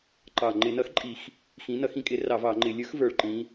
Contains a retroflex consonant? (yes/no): yes